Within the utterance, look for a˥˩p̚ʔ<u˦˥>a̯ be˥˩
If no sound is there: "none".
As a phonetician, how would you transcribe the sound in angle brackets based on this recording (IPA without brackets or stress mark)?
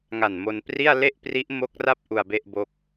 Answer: u˧